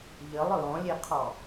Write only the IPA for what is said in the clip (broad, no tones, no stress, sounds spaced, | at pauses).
ʎ ə lˠ ɹ ɔ̃ lʲ e qʰ ɔ